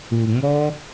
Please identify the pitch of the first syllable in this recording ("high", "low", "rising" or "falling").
low